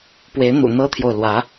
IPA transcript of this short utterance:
pwe˧˥ɪ̯n̪ṵ˨˩ n̪ɤ˥t̪ʰjo˨ʊ̯lwä˧˥

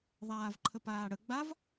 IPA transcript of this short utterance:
ðˤaːvǃʰəpaːɽə ɡ͡bav

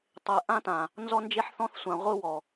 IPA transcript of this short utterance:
tˤe˨ʔã˦tã˨ | nzɔ˦nd͡ʒe˦ħθɔ̃˦θsʷã˨ ʁʷɯ˦wɔ˨

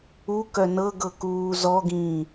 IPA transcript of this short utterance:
u kœnɤɡɤ kuːzɔɡĩː

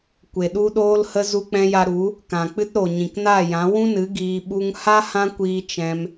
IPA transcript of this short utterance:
kʷe˨ɗu˧ɗoː˧lhə˧ zu˧k͡pɛ̃˧ja˧ɾu˨˦ | kã˨ k͡pɨ˧tɾo˨ ɲĩ˨kna˦˨jã˨˦ wũ˦nɨ˨˦ ɡiː˧ɓu˦ŋ ha˦ hã˦kʷiː˧ t͡ʃɛ̃˧m

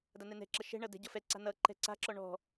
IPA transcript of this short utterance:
danɛnɛ̤ǁʌ ʃɛ̤ɳʌ dɛ̤ɟʌfɛǀa̤ nʌǃɛ̤ ǀa̤ǁɔ ɳɔ̤

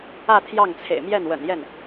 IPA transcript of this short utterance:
ä˥˧ t̪ʰjɑ˥˩ŋt͡sʰḛ˨˩ɪ̯mjɛ˥˩nwə̰˨˩n jɛ˥˩n

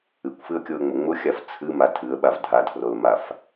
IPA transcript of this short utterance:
ɨkʷfɨə̯kʲoə̯ŋ͡mʊ ŋ͡mʊxʲaf t͡sʰɨma tʰɨə̯ɓav dʱatʰrolmaf

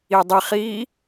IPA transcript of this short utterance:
idˤiχiː

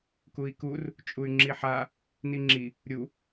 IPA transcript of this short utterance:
kui̯kur | t͡ʃʼuy̯ŋ͡ǁiħa | niŋ͡ǁi | ɾʲu

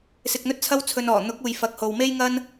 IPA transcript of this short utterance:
sɪ˧k̚n̪ɵ˥t̚t͡sʰɐ˥wt͡sʰɵ˧n ɔː˨˩n̪ʊ˨˥k̚ uː˨j fɐ˨k̚ ho˨wme˥jŋɐ˥n

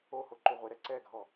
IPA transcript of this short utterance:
oho ǃuʁʷeɾɛ ǀɛɡʱɔ

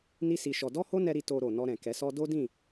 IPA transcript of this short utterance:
ni˦si˧ʃɔ˧ dɔ˦ho˦nɛ˧ɾi˧ to˧ɾo˨ nɔ˧ɾɛ̃˨ kɛ˨˦sɔ˦ do˦dĩ˦˨

